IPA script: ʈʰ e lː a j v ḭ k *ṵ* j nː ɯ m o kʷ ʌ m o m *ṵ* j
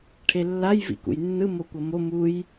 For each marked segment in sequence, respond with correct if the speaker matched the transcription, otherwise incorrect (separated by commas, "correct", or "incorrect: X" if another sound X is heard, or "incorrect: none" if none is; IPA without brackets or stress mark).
correct, incorrect: u